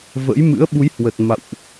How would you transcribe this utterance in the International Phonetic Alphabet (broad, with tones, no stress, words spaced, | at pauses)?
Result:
və̰˧˥j mɨ̰˧˥ə̯ɓu˨˦jhwə˨˩t̚ ma̰˧˨wʔ